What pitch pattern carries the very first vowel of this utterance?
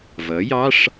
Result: rising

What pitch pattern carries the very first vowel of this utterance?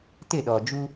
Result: falling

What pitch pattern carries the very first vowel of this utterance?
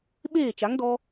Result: falling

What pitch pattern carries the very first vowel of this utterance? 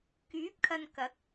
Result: rising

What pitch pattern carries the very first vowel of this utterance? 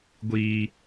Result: high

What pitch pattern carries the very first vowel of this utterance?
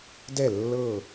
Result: falling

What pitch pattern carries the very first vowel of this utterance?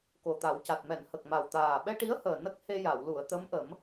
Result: low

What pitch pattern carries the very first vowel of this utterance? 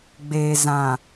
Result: low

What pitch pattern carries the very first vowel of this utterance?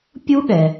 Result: high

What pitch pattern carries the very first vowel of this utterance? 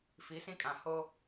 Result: rising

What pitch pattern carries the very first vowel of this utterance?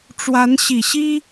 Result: rising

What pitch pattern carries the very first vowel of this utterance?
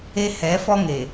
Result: high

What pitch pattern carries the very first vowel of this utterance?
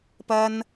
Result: high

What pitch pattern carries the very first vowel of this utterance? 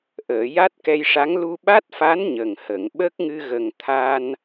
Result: low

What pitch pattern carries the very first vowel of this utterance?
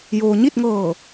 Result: low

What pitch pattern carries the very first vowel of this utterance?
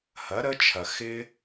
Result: rising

